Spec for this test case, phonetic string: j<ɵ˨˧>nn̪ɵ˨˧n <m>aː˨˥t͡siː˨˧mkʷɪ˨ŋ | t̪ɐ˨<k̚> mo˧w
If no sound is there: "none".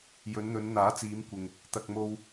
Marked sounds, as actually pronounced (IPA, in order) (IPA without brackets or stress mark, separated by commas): ɵ˨˧, n̪, k̚